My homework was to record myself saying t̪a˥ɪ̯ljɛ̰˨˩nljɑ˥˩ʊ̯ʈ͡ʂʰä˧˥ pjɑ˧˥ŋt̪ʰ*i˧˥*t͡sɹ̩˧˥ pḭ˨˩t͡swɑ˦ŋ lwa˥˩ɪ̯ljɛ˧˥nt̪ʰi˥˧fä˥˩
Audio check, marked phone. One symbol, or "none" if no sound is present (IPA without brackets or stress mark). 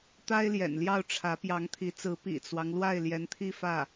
i˧˥